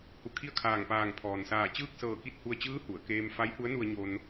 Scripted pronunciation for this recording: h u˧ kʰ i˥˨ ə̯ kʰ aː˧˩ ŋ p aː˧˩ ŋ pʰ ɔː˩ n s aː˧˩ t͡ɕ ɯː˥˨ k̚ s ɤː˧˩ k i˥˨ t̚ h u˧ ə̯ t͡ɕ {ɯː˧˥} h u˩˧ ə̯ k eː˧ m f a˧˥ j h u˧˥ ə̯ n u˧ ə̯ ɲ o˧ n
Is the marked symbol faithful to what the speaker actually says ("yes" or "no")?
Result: yes